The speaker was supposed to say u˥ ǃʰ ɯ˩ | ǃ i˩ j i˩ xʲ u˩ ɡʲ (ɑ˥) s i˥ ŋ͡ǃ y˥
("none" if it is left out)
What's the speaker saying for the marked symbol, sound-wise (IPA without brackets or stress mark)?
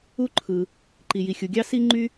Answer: ɑ˥